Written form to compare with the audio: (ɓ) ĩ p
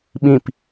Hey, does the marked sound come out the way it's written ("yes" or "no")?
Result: yes